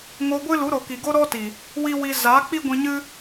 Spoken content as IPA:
ŋ o˧ ɡʷ ɨ˦ l u˨˦ ɾ o˨ k i˨ ɡ o˦ ɾ ɔ˦ t i˨ | w i˦ w i˧ z aː˨˦ k͡p i˦ ɡʷ ĩ˧ ɲ ɨ˦

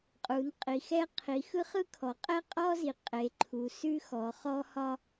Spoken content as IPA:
qʼ u˩˧ n qʼ i˩˧ x ɛ˥ qʰ i˩˧ x ɯ˥ χ ɯ˥ kʰ ɔ˩˧ qʼ ɛ˥ qʼ ɔ˥ z i˩˧ qʼ e˩˧ ǃʰ u˩˧ s ʉ˥ x ɔ˩˧ χ ɔ˥ h ɒ˥

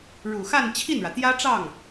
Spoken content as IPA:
ɻ u˨˩ x a˥˧ n t͡ɕʰ i˥˩ n ɻ ä˩ t̪ j ä˥ ʈ͡ʂ ɑ˥˩ ŋ

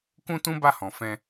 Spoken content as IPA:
k ũ˦ t ũ˦ b a˦˨ h ɔ̃˨ f ɛ̃˧

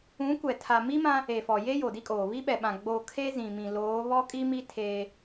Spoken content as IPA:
ũ˨˦ kʷ ɛ˨ tʰ a˨ m i˦ m ã˦ | e˨ f ɔ˨ j e˦ j o˨ d i˦ kʼ oː˨ β i˦ ɓ ɛ˨ ɓ ã˨ ɡ͡b o˦˨ kʰ e˦ z ĩ˨ m ĩ˨ l oː˨˦ β ɔ˦ kʼ i˦ m i˦ tʰ eː˦

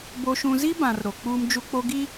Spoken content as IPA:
b o˨ ʃ ũ˨ z i˦ b ã˨ r ɾ o˨ k͡p uː˦ m d͡ʒ u˦ k͡p o˦ ɡ i˦

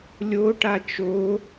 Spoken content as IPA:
lʲ o ʈ a t͡ʃ o

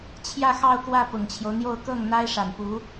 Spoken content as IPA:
t͡ɕʰ j ä˥˧ x ɑ˥˧ ʊ̯ k w ä˥˩ p ʊ˨˩ ŋ t͡ɕʰ j o˦ ʊ̯ n̪ j o˥˧ ʊ̯ k ɤ˥˩ ŋ n̪ a˥ ɪ̯ ʂ a˨˩ n p u˧˥

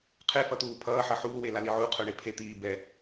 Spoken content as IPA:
qʰ e f ʌ t̪ uː pʰ ʌː ħ ʌ ħ uː w e l a l i ʕ u qʰ o ɳ e pʰ e t̪ iː b ɛ

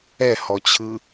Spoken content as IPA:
ɛ h ɔ t͡ɕʰ ɯ

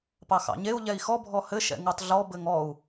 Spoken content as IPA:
p ɑ x ɑ̰ ɲ e u̯ ʎ ɛ i̯ x ɔ bʱ ɔ h ɘ ʃ ɛ̰ ŋ u tˤ ɮ ɔ b ɘ ŋ ɔ u̯

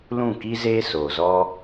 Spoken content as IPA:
l ũ˦˨ k i˦ z eː˦ s oː˨ z ɔ˦

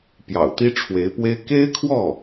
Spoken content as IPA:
p j ɑ̰˨˩ ʊ̯ t̪ i˥ ʈ͡ʂʰ w e˧˥ ɪ̯ p w e˥ ɪ̯ k e˥ ɪ̯ kʰ w ɔ˥˩

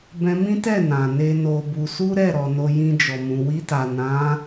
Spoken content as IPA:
b ɛ̃˧ m ĩ˦ t ɛ˦˨ n ã˨ n e˧ n o˧ b u˧ s u˦ ɾ ɛ˦˨ ɾ ɔ˨ n o˧ j ĩ˧ d͡ʒ ɔ˨ m ũ˨ w i˧ t a˨ n ã˨˦

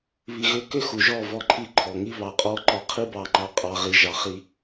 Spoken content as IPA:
β i˧ ɣ ʏ˦ k ʏ˦ x u˨ ʒ ɔ˦˨ v ɔ˦˨ ǃʰ i˦ ǃʰ ɔ˨ ŋ i˦ β ɑ˨ qʼ ɔ˧ ǃ ɔ˧ qʰ i˦ b ɑ˧ ŋ͡ǃ ɑ˧ qʼ ɑ˨ ʁ i˨ ʒ ɑ˨ χ i˧

